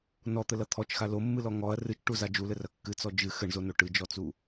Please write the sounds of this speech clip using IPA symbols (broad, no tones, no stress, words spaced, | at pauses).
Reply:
nɔt̪ɘlɐ t̪ʰɔt͡ʃxa lomːɨlɔ ŋɔɐ̯ rɨt͡ʃʈuza d͡ʒulɘrɐ kːɨt͡sɔ d͡ʒɨ xɘɳzono ʈɨd͡ʒɔt͡su